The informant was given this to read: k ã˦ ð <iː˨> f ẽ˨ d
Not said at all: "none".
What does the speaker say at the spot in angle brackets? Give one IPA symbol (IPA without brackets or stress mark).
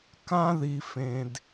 i˨